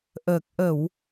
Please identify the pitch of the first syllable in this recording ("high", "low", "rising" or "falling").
low